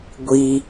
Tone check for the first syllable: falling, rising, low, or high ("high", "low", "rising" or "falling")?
low